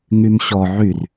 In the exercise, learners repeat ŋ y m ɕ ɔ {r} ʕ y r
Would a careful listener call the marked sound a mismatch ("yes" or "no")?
yes